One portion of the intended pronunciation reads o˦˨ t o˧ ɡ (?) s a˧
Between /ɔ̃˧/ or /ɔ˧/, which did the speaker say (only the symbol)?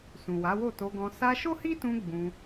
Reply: ɔ̃˧